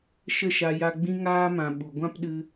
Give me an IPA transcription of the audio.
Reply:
ʃ ə˦˨ ʃ a˧ j a˧ ɡ͡b ĩ˧ ŋ aː˧ m ã˨ ɓ u˨ ɡʷ ã˦ p ɗ ɨ˧

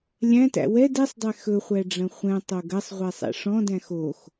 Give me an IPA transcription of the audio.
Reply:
lʲ æ̃ t æ̰ w ɛ d ɛ sˤ dˤ ɛ x ɵ χʷ æ ɖ͡ʐ ɐ̃ χʷ ɛ̃ tˤ o ɡ ɐ sˤ ʁʷ ɛ sˤ ɛ̰ ʂ ɔ̃ d æ̃ x o x

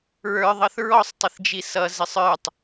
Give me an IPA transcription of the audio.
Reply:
ɹ ə˞ ðˤ ʌ θ ɹ ɔ sˤ tˤ ɪ θ d͡ʒ i s ʌ z ɪ sˤ ə˞ tˤ

